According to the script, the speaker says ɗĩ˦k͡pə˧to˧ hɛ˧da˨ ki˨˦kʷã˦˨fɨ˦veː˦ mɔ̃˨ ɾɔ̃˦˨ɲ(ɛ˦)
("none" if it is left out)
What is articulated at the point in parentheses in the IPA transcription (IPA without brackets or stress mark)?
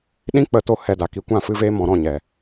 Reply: ɛ˨